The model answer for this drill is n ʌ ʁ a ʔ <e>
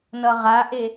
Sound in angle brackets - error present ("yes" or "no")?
no